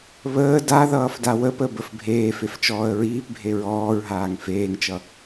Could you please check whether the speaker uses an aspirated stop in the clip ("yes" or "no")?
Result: no